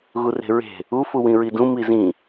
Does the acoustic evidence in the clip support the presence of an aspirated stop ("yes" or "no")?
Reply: no